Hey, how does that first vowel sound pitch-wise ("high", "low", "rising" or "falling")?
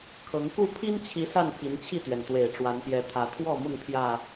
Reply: rising